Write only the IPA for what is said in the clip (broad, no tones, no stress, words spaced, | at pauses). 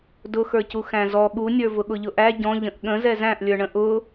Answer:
dʊxə˞cu xæ̃zɔ ɠunʲə˞ vʊɠʊʎʊʔæ ɟɔ̃ ʎə̃ʔɠə̃ zɛzæ̃ʔlʲə˞ɳə̃ ʔʊ